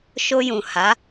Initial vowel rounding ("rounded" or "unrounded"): rounded